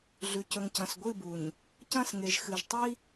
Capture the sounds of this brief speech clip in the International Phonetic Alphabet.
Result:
ɮʉ˨cɵ˨ŋcɐ̃˨s ɡʷɨ˦˨bu˨ɲ | cɐ̃˦˨sŋe˨ʒxɨ˨ʒ tˤi˦

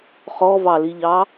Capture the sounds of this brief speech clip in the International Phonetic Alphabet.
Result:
χɔvɑliʎɑ

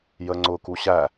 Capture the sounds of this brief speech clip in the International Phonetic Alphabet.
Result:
jəŋ͡ǀʊ kuɕæ

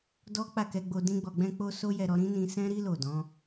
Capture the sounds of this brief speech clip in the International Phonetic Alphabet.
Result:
dɔ˦k͡pa˦˨kɛ˧ɡ͡bo˧ dĩ˦ɡ͡bɔ˧ɡ͡bɛ̃˦k͡po˦ so˦jɛ˧ɾɔ˧ ɾĩ˦nĩ˧ sɛ̃˦ɾi˦ lo˦˨dɔ̃˨˦

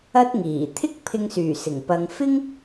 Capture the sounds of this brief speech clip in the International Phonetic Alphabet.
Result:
ɐ˥t̚ŋiː˨˩ t̪ʰɪ˥k̚pʰɪ˧ŋsyː˨˩ sɪ˨˩ŋ pɐ˨ŋfɪ˥ŋ

